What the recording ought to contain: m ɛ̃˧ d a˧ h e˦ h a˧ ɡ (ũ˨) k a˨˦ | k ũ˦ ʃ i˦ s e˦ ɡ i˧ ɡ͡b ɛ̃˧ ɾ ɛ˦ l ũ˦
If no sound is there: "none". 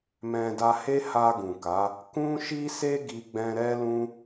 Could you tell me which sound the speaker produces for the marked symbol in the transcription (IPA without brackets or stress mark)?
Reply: ũ˨